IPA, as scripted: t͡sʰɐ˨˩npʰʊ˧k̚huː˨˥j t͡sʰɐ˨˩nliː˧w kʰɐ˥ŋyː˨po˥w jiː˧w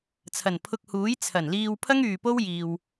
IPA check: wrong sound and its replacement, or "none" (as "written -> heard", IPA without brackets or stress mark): kʰ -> pʰ